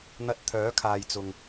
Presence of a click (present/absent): absent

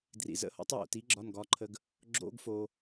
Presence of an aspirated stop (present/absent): present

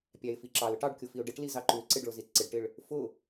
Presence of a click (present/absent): present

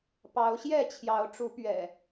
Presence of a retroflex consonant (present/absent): present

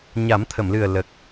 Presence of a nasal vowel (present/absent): absent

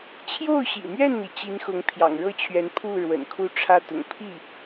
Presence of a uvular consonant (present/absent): absent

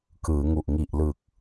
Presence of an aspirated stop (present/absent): absent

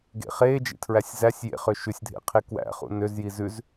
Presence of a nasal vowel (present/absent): absent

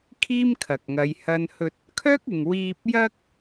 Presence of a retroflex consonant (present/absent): absent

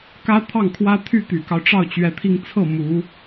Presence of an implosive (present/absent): absent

